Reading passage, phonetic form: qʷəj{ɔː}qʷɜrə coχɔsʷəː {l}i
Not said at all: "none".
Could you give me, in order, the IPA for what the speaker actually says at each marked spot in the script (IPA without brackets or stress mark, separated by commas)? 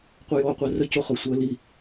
ɔː, l